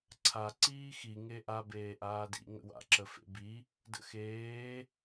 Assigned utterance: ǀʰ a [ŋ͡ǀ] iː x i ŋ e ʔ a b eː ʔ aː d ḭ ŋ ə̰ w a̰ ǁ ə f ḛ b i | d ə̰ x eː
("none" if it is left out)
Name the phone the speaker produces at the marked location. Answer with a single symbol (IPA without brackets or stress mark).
ǀ